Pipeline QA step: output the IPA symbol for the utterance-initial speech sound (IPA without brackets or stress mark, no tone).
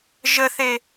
ʒ